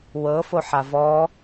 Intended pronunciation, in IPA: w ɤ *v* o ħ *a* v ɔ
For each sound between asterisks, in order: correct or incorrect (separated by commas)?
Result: incorrect, correct